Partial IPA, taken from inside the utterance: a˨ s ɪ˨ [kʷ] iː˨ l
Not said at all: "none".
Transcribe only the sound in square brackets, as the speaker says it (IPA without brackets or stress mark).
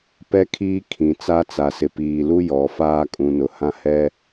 p